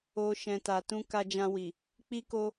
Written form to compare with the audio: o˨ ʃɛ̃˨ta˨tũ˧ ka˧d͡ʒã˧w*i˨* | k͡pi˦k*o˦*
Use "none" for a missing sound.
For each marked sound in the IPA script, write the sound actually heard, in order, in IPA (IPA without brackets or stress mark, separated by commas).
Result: i˨, o˦